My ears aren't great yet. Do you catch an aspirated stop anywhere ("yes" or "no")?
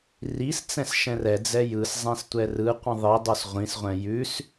no